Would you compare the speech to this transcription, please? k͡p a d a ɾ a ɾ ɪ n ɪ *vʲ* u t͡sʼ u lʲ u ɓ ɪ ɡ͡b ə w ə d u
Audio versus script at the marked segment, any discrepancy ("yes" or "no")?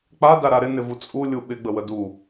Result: yes